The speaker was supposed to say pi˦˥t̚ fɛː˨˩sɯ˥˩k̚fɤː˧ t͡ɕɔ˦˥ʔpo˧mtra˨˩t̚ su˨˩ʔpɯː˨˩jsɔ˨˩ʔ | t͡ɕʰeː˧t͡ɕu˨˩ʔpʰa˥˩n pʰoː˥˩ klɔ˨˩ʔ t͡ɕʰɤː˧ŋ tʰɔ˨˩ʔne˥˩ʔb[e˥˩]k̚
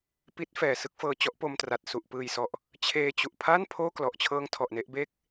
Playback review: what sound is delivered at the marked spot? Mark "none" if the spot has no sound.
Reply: eː˥˩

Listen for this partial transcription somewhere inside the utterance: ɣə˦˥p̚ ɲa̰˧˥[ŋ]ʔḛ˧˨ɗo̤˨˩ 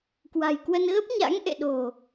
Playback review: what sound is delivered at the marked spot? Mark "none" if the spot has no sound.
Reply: ŋ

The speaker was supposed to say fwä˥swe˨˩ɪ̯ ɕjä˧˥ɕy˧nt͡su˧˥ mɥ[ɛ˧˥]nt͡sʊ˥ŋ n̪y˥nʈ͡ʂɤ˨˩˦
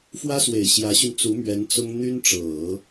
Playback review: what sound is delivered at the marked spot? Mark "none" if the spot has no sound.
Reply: ɛ˧˥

